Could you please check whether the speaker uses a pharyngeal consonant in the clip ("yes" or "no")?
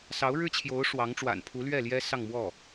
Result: no